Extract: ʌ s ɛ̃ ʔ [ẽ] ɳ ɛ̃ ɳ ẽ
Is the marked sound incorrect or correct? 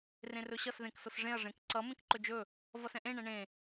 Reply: correct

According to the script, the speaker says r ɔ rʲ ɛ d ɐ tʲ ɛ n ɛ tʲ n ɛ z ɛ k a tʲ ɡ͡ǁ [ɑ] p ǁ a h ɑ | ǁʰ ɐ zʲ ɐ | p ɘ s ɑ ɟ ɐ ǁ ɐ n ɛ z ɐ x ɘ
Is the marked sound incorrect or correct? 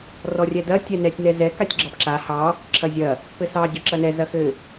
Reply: correct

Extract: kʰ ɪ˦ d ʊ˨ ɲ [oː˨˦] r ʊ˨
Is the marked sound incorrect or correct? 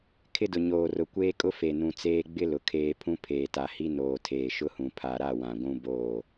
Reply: incorrect: oː˨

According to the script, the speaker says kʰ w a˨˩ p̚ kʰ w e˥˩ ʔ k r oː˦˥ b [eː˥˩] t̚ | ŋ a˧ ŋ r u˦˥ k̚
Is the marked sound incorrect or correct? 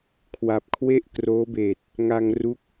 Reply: incorrect: eː˨˩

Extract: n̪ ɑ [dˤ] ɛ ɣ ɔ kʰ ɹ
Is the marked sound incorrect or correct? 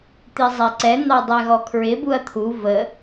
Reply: correct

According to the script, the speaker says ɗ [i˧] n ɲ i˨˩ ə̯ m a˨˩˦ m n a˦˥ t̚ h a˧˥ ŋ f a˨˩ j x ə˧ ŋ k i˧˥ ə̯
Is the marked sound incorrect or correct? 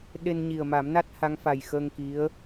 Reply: incorrect: e˧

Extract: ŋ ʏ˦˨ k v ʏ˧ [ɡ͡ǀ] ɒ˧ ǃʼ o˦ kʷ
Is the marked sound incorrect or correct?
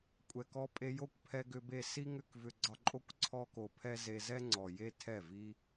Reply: correct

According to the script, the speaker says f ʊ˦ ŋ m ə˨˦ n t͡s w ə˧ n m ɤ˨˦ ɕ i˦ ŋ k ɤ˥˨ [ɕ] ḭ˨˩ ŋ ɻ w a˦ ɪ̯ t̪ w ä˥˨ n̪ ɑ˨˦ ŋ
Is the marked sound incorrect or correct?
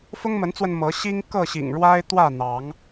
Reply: correct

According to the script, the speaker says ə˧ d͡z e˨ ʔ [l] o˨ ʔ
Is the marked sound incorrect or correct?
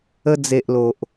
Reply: correct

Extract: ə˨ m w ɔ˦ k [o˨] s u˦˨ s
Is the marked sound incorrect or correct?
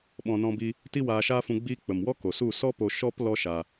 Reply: correct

